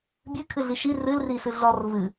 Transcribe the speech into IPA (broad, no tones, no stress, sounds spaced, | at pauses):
bʲ ɨ kʰ ɨ ɮ i ʃ i r ɨ l r i s ɨ ɮ ɔ r v ɨ